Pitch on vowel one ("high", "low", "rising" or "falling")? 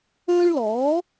high